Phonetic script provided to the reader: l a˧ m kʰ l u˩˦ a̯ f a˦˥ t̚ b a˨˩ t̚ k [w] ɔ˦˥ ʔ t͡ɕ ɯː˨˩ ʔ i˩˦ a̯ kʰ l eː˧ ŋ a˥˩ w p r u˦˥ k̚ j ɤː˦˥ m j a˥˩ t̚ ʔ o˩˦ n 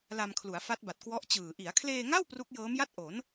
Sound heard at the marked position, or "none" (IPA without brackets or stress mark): w